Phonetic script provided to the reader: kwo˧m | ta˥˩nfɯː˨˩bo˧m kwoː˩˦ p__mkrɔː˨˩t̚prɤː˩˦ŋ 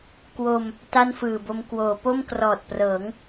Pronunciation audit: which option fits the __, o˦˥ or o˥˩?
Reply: o˥˩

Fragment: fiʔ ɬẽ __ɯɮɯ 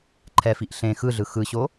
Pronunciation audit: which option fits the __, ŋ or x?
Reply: x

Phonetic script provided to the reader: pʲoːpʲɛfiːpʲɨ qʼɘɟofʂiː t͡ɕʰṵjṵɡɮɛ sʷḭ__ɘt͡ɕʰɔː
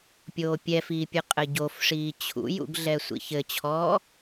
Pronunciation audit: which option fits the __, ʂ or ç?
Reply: ç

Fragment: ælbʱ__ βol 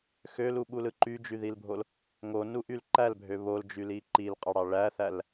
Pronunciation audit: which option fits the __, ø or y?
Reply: ø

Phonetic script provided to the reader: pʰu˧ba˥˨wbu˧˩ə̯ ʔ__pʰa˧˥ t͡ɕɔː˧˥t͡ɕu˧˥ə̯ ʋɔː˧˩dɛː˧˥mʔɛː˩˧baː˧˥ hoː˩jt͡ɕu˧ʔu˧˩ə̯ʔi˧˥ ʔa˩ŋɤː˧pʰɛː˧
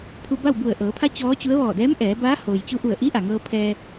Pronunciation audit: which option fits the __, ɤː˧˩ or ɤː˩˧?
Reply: ɤː˩˧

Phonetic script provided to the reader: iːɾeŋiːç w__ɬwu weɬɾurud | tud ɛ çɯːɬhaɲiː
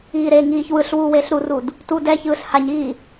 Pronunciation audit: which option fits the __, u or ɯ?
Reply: ɯ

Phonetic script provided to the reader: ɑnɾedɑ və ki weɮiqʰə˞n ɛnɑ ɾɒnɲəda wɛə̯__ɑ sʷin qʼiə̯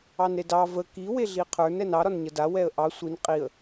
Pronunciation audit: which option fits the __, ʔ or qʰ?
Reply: ʔ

